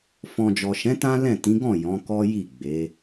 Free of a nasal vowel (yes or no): no